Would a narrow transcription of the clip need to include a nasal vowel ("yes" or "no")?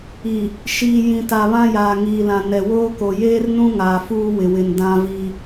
yes